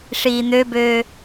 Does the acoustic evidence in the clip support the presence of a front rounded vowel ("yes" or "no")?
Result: yes